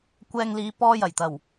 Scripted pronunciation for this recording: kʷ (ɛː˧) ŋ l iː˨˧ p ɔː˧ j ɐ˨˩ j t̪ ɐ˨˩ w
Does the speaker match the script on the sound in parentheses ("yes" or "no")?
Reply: yes